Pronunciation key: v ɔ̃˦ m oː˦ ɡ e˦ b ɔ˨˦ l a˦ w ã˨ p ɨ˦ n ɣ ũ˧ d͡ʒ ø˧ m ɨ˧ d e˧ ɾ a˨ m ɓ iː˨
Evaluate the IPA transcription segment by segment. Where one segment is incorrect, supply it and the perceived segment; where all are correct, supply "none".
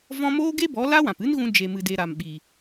ø˧ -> e˧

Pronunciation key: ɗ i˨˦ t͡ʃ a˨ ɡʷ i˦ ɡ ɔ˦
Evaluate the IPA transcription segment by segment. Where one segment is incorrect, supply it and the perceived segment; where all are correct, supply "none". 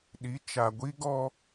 none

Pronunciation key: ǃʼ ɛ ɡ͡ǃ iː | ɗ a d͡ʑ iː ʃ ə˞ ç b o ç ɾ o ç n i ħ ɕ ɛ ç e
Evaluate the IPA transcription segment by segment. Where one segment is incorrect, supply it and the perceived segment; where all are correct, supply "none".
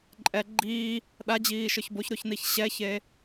ħ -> ç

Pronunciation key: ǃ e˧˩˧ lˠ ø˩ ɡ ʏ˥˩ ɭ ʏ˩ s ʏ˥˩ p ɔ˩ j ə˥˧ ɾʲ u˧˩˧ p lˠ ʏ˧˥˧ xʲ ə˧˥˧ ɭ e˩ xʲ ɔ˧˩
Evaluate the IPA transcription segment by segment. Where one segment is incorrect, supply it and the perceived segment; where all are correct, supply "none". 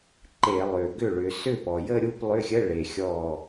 u˧˩˧ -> u˥˧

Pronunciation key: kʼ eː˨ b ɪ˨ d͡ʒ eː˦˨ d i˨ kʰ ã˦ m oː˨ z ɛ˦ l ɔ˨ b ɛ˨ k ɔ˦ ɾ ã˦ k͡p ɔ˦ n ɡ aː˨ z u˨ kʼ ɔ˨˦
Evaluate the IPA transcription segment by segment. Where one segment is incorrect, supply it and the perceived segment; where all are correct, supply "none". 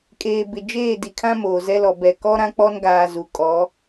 none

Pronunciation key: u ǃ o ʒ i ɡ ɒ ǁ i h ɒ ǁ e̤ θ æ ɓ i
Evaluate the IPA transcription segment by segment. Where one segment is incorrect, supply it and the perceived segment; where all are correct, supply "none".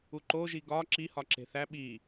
none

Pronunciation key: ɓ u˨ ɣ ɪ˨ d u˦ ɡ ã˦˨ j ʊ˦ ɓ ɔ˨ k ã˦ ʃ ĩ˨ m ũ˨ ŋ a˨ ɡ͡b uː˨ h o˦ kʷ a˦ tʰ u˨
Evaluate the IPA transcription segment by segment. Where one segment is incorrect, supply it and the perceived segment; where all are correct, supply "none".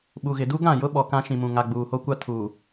none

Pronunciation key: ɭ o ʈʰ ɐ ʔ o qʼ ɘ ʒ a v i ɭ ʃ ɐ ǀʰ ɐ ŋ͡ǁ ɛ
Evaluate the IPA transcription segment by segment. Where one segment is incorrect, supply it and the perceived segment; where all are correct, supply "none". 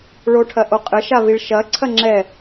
ʒ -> ʃ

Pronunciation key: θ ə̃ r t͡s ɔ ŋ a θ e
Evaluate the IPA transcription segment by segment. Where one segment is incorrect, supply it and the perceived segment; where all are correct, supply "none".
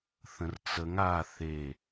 ɔ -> ə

